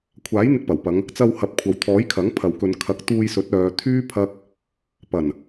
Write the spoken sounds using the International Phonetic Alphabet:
kʷʰ aː˨˥ j n̪ ɪ˧ k̚ p ɐ˨˩ w p ɐ˨˧ ŋ | t͡s ɐ˧ w h ɐ˨˥ p̚ kʷʰ ɐ˨ w t̪ʰ ɔː˨˥ j kʰ ɐ˨˥ ŋ pʰ ɐ˨ w k ɵ˨˧ n kʰ ɐ˨˥ k̚ t̪ uː˧ j s ɵ˨˥ t̚ œː˨˧ t̪ʰ yː˥ pʰ ɐ˧ k̚ | p ɐ˨˩ n

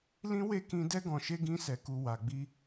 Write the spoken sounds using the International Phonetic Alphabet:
l ĩ˦ w e˦˨ k ĩ˧ d ɛ˦ ɡ ɔ̃˧ ʃ e˦ ɡ ĩ˦ s ɛ˧ k u˧ w a˨ ɡ͡b i˧

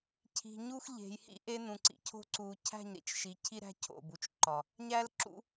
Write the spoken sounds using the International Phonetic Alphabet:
cʰ i̤˨ ɲ u˦ x ʎ e̤˨ j h ḭ˦ ʔ e˦ n ũ˨ ǀ ḭ˨ cʰ o̤˦ ǀ u˨ cʰ æ̤˦˨ ɲ ɾ ḭ˨ t͡ʃ ʃ i˨ cʰ i˦ ɾ æ̤˦ cʰ o̰˦˨ b u˨ t͡ʃ ǃ ɒ˨ | ɲ æ˦ l ǁ ṵ˦

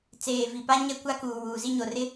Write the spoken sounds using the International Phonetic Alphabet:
t͡s eː˨ v i˨ p a˦ ɲ ɛ˦ kʷ a˦ k uː˨ w uː˨ z i˦ ɲ o˨ r ɪ˦

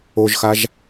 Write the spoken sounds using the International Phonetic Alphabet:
o ʒ x a ʒ

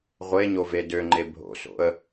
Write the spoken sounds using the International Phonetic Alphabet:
ʁʷ e ɲ o v e d ø ŋ͡ǃ e bʱ o̰ s o̰ ə̯

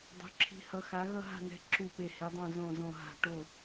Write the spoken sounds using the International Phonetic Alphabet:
dˤ o̤˧˥ ǁʰ i̤˧˥ h ʌ˧˥ x a˧˥ ɣ ʌ˥˧ ɦ a̤˥˧ n ɛ̤˧˥ ǁʰ u˥˧ p e˥˧ h e˧˥ dˤ õ˥˧ z õ˥˧ z õ˥˧ ɦ a̤˥˧ ʈ o˥˧

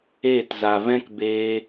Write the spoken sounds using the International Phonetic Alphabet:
eː˦˨ t z a˨ v ɛ̃˦ k b eː˧

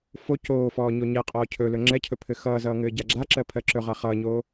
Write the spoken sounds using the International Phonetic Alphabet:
f o c oː f ɔː ɲ o ɲ ɛ qʼ ɔː cʰ ɵ l ɵ ŋ͡ǁ ɛ cʰ ɵ pʰ ɘ x ʌː z ʌː ŋ ɘː ɟ a ɡ͡ǁ a ǁ ɜ pʰ ɜ ǁ ɵ ʁ a χ ʌː ɲ oː

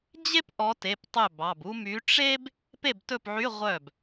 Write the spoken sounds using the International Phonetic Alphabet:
d͡ʑ e˥ p ʔ ɔ˨˦ t e˩˧˩ p tˤ ɵ˥˩ b ɑ˩˧˩ b u˥ m y˨˦ ʈ͡ʂ e˥ b | p e˥˩ b t ɵ˥˩ p ʕ y˧˥˧ ʁʷ œ˥˩ b

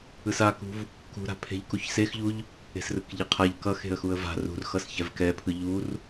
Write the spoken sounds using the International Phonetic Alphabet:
ɯ s a k ṳ v | k ṳ ɾ a̤ pʰ e̤ ʎ k u ç s e x ʎ u ʎ | e̤ s r ɯ k ʎ e qʰ a ʎ k ʌ x e̤ ə̯ x u ə̯ v a̤ r ṳ r x ʌ s ç ɛ v k ɛ pʰ ɯ ʎ u r

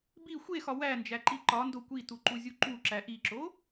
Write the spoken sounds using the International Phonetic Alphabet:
b i xʷ e x ɒ w æ n d͡ʒ æ ǃ i ǃ ɒ n d o kʷ i t u ǃ u zʲ u ǃ u ǁ æ ʔ i ǁ o

